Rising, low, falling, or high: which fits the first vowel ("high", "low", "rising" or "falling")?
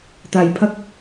low